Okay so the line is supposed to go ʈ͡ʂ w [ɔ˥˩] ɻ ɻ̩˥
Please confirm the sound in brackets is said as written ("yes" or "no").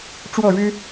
yes